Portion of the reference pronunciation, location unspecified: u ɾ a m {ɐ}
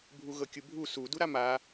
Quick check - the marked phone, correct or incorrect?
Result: incorrect: a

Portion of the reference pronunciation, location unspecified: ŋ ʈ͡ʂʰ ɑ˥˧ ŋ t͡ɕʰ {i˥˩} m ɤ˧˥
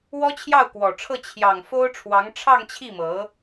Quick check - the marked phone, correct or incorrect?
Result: correct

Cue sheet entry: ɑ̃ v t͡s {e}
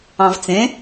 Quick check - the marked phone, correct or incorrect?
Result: incorrect: ẽ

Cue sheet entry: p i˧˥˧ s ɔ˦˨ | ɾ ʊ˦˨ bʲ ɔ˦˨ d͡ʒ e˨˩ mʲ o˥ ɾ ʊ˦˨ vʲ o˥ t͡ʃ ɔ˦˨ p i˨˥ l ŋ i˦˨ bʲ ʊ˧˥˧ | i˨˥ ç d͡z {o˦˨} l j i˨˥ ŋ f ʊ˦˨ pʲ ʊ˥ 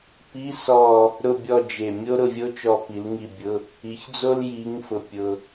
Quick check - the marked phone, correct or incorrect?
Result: incorrect: o˥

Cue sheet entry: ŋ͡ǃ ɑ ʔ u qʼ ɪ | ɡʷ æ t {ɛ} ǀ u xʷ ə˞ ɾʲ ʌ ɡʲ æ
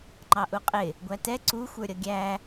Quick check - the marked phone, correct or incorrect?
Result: correct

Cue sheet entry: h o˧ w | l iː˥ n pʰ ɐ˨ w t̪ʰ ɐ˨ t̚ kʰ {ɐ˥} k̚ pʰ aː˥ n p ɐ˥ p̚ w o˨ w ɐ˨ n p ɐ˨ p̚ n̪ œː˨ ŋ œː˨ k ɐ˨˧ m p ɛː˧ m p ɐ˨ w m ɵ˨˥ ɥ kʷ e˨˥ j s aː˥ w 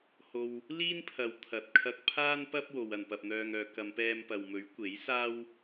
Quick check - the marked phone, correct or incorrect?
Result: incorrect: ɐ˧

